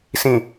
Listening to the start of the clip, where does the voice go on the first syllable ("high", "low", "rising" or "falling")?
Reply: low